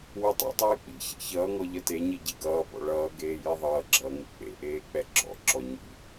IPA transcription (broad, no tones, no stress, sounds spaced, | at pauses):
w u tˤ ḭ tˤ eː k͡p ḭ ç ḛ ç ʌː ŋ ɔ ʎ ʌ t e ɲ i ɟ i ɡ ʌː b ɔ̰ ɭ ʌː ɡ eː j i ðˤ ʌː ɡ͡ǁ ʌː ŋ u k͡p ḛ ʔ eː k͡p ɛ ɡ͡ǁ ɔ̰ ǁ ɔ ɲ ḭ